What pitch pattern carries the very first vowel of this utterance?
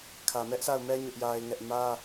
low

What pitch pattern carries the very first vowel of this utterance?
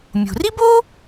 low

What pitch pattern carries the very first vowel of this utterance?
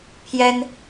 high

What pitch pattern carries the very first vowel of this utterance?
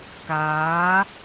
rising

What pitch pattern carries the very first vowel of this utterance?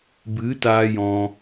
rising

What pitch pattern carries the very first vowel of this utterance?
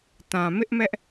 low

